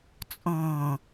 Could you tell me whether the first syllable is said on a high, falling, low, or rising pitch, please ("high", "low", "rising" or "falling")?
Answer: low